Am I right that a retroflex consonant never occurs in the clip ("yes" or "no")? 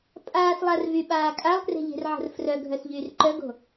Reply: yes